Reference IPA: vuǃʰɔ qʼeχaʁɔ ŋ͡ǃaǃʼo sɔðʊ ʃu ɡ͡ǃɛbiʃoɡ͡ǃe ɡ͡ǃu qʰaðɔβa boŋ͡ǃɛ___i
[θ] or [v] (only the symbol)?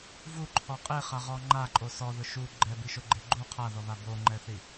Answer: θ